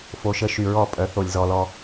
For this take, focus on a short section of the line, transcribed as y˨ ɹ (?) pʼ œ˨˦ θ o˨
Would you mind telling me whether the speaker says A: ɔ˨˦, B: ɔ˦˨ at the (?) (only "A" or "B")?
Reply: B